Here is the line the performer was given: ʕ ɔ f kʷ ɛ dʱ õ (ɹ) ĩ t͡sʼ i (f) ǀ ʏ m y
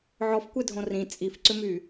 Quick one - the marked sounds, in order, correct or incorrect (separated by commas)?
incorrect, correct